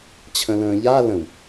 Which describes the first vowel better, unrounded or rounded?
unrounded